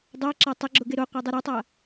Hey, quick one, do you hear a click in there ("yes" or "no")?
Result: yes